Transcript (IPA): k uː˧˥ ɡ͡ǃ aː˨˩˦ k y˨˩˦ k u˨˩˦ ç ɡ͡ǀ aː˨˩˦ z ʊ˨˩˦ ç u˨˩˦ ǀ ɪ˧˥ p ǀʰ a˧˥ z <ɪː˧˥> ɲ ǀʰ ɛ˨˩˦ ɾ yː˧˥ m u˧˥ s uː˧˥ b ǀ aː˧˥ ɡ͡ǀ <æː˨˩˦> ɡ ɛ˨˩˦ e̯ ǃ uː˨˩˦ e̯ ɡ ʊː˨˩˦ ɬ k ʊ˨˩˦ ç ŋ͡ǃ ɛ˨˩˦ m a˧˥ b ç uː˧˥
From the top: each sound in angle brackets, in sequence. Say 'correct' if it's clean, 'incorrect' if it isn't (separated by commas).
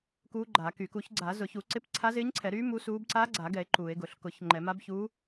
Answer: correct, incorrect